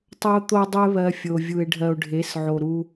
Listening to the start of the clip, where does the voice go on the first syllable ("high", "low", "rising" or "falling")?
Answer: high